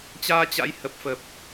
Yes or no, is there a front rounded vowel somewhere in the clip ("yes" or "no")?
no